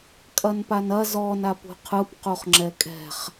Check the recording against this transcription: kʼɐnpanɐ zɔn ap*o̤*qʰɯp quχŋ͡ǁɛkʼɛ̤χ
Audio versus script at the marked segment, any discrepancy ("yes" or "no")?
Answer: yes